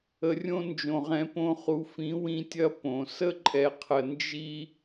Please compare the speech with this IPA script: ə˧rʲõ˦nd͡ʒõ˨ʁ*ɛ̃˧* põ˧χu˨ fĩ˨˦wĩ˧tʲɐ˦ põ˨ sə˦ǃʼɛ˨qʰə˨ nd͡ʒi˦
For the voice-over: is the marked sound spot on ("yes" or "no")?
no